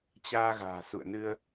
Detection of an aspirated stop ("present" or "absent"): absent